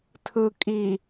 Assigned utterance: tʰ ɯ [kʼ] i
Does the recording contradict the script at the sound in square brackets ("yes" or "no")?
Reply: no